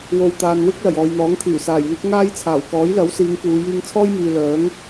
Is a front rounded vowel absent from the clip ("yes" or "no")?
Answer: no